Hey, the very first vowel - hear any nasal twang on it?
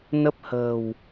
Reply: no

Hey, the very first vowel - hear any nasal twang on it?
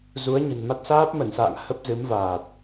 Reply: no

